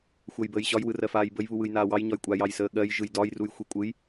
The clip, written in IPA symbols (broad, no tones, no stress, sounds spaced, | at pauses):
xʷ ɜ j b əː j ɕ ɒ j w ɯ r ɜ f aː j b ə j β u w ɯ j n aː w ɑ j ɲ ɒ j kʷʼ a j ɑ j s əː ɠ ɜ j ʒ ɯ j d ɒ j r u j xʷ i kʷʼ ɯ j